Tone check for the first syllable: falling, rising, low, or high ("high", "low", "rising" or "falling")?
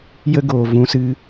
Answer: high